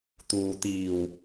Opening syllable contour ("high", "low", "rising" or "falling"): low